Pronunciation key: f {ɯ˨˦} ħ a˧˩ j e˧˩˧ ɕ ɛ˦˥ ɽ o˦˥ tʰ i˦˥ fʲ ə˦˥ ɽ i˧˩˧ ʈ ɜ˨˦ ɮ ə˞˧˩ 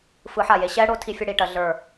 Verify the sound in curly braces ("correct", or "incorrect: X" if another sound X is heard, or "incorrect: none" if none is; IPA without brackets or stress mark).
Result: correct